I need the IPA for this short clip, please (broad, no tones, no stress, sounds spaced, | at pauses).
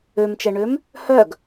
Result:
ø m t͡ʃ ɛ ɳ ø m | h œ ɡ